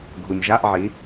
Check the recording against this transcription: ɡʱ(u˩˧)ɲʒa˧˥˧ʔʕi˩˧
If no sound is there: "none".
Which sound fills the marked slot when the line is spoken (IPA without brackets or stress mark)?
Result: u˩